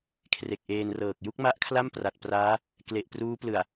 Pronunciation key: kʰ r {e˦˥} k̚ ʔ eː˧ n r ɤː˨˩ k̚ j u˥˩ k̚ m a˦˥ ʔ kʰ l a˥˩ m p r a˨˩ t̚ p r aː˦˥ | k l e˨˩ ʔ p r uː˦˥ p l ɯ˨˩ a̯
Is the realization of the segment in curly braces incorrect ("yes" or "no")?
yes